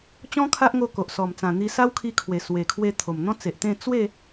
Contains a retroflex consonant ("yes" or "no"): no